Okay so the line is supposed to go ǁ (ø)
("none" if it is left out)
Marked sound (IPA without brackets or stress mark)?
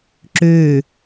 ø